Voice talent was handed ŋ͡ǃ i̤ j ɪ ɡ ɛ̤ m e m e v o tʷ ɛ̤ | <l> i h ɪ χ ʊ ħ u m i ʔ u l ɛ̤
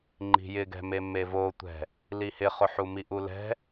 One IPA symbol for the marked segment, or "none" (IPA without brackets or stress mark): l